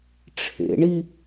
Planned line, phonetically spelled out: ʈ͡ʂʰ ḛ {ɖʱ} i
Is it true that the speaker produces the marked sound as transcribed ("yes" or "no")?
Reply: no